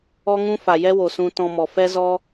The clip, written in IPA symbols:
ɔ˦ ŋ ũ˦ f a˨ j ɛ˦ w o˨ s ũ˧ t ɔ̃˧ m ɔ˨ f ɛ˦ z ɔ˦

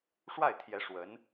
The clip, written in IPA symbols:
ʂ w a˥˩ ɪ̯ t̪ʰ j ɛ˧˥ ʂ w ə˧˥ n

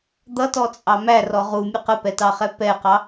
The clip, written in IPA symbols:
d̪ ʌ t ɔ t͡sʼ ɑ m æ r ɔ ʁ u mʲ ə q ə p ɛ t ɑ χ ɛ p ɛ q ɑ

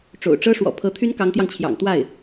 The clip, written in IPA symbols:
ʈ͡ʂ o̰˨˩ ʊ̯ ʈ͡ʂ ɤ˥ ʂ w ɔ̰˨˩ pʰ ɤ˧˥ t̪ʰ y˥ n k ɑ˧˥ ŋ t̪ j ɑ˧ ŋ t͡ɕʰ j ɑ̰˨˩ ŋ t̪ w a˥˩ ɪ̯

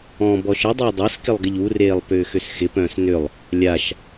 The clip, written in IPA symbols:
ɔ̃ b ɔ ʃ ə dˤ ɪː dˤ a s k ɪ lˠ ɡ ɪ ʎ u r eː lˠ p ʏː x ʏ s x ɪ p œ̃ː s n ʏ lˠ | lʲ a ʃ

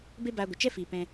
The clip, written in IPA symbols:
b e˦ b aː˧ ɡʷ ə˨ t͡ʃ ɛ˦ f iː˨ p ɛ̃˧

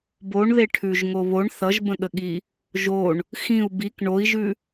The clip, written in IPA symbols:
b o ɳ ð e ʈʰ ʉ ʒ ŋ o β o ɳ θ ʌ ʒ b ə̃ ɠ ə ɠ i | ʒ o ɳ | x ĩ u̯ b i k ɳ o i̯ ʒ ʉ

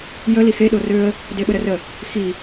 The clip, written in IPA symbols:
j ə l i x e ɗ o r ø ə̯ | d e ɓ ə ɾ ə r ə | x i

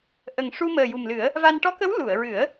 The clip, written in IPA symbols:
ʔ ə˨˩ ŋ ʂ u˧ m əː˨˩ j u˨˩ m l ɨ˨˩˦ ə̯ | v a˧ n ʈ ɔ˧˥ k ə˧˥ w l u˨˩˨ ə̯ ɹ ɨ˨˩˦ ə̯

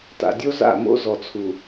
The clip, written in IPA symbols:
t a̰˨ dʲ o˦ z a̰˦˨ m o̰˦ z ɔ˨ t͡sʰ u˨

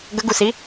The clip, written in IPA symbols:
ɡ ə ɡ u s i

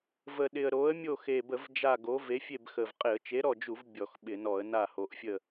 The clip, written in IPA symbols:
v ə˨˩ ɗ ɪ˨˩ ə̯ ɾ o˨˥ ə̯ mʲ o˦˨ x e˨˩ b ə˧˩˧ v d͡ʒ a˦˨ ɡ o˨˥ v e˨˥ fʲ e˦˨ b x ə˨˩ v qʼ ɪ˧˩˧ ə̯ t͡ʃ e˨˥ ɾ ɔ˦˨ d͡ʒ u˧˩˧ v bʲ ɔ˧˩˧ x ɓ ɪ˧˩˧ n ɔ˧˩˧ ə̯ n a˦˨ h o˨˩ ʔ fʲ ə˦˨

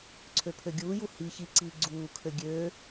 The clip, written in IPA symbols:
ǀʰ ø pʰ ø ɡʲ uː j u h i ç i ǀ iː ɡ͡ǀ uː kʰ ø ɡʲ øː

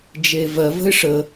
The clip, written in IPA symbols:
d͡ʒ e v ɜ v ə̤ ɪ̯ ʂ ə

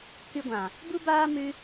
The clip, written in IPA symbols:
k ɨ˧ ɡʷ ã˨ | b u˦ b aː˦ m ɨ˦

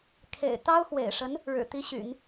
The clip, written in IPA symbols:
kʰ ḛ˨˩ ɪ̯ t̪ ɑ˥ ʊ̯ x w ḛ˨˩ ɪ̯ ʂ ə˧˥ n | ɻ ɻ̩˨˩ t̪ i˧˥ ɕ y̰˨˩˦ n

